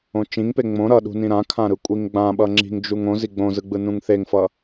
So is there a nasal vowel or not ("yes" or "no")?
yes